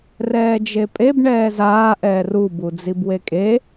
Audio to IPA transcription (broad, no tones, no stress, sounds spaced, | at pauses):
r ɛː d͡ʒ e pʼ e b ɳ ɛː z aː ʔ ɛː r u b u d͡z i b w e kʼ e